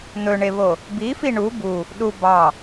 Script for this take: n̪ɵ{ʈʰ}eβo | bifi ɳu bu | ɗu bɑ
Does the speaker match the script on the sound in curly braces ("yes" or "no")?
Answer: no